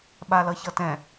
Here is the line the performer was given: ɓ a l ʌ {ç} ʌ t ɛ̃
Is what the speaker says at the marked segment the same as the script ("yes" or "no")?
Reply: yes